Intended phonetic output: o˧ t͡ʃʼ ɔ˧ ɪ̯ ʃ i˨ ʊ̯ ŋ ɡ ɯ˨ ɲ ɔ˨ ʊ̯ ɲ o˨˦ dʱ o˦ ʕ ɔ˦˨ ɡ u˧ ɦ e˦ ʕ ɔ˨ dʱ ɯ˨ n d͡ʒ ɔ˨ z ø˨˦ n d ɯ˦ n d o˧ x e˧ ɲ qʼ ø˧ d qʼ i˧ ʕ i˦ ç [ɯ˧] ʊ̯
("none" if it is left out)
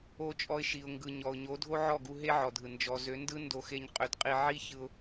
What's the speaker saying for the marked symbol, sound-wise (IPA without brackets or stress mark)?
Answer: ɯ˧